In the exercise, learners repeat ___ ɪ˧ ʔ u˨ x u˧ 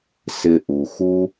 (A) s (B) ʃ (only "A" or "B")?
A